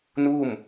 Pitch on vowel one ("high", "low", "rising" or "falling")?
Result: falling